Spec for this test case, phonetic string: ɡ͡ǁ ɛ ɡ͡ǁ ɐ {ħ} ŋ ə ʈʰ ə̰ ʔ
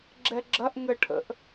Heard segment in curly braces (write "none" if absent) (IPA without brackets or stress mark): ʔ